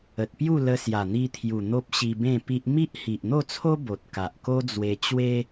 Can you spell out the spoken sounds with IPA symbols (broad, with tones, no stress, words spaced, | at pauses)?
ə˨t̚pju˥˧ lə˧ sja˨˩n̪i˧t̪ʰju˨˩ n̪o˦p̚ɕi˧bẽ˥˧pi˦ʔ mi˦ʔhi˨ʔ n̪o˥˧t͡sʰo˦ bo˨t̚ ka˨ʔko˦d͡zwe˧t͡ɕwe˦